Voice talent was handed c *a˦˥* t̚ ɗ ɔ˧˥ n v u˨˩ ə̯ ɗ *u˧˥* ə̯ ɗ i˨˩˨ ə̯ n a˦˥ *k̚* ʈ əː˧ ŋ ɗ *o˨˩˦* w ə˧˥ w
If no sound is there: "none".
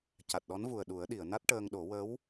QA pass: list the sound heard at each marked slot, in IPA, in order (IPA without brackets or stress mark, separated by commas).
a˨˩, u˨˩˦, t̚, o˨˩˦